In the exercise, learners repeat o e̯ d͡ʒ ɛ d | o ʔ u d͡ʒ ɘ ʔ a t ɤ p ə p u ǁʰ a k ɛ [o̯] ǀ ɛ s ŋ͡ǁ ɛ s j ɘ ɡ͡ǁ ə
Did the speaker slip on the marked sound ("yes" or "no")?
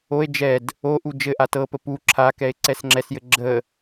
yes